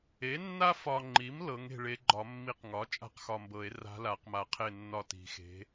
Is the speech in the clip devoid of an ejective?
no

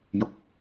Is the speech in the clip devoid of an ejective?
yes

